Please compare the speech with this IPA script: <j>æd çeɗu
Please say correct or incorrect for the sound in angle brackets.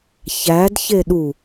incorrect: ç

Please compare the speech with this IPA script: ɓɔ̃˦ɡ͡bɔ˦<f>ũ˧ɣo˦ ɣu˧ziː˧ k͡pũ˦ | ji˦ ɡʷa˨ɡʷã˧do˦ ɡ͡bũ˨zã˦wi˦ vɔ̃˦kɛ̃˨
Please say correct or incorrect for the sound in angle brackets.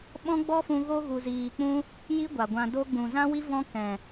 correct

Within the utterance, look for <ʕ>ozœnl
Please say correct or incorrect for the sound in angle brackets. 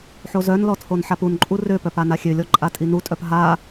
incorrect: ħ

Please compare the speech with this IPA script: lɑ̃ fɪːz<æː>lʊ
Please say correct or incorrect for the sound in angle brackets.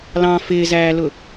correct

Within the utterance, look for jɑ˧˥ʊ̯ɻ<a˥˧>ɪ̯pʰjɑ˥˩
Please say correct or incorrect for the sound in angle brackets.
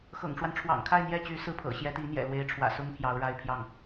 correct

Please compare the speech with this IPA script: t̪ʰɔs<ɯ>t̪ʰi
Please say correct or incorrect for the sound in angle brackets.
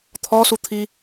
incorrect: u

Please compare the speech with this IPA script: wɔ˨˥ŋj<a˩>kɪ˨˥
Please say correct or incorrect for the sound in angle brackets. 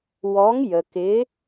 incorrect: ə˩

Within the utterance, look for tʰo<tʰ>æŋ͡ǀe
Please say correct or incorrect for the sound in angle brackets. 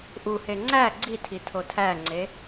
correct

